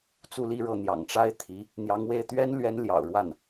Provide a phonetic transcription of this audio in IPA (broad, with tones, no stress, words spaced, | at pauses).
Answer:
t͡su˥˧li˥˧ɻɤ˥˩ n̪jɑ̰˨˩ŋʈ͡ʂa˥ɪ̯t̪ʰi˧˥ | n̪jɑ˧˥ŋwe˥˩ɪ̯ t̪ɥɛ˥nlɥɛ˧˥n ljɑ̰˨˩ʊ̯ɻwa˥˩n